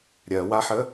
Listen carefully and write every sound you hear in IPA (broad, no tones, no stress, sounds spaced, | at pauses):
ɾʲ ɜ w a ħ ə